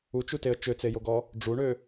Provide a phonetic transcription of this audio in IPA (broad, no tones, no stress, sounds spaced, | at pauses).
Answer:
u t͡ʃ u t e ə̯ t͡ʃ ø t͡s e j o ɡ ɔ | ɖ͡ʐ u ɳ ø